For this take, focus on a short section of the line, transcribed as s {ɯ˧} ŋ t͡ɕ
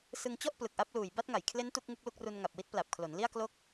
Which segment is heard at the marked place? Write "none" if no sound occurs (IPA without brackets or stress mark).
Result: ɯ˧